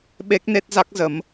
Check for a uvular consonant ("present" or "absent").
absent